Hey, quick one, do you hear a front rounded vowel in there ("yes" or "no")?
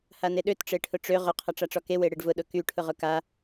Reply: yes